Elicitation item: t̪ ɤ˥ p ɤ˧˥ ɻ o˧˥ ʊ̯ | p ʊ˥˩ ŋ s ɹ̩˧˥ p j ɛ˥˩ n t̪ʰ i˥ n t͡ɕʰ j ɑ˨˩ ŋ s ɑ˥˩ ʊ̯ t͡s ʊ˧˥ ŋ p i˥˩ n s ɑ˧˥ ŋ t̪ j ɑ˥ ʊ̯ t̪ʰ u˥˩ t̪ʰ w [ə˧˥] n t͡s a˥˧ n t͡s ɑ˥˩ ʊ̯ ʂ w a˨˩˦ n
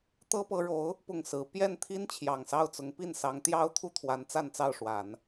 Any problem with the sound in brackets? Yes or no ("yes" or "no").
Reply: yes